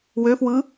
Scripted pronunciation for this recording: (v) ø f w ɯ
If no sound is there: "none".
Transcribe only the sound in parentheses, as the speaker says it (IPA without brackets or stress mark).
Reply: w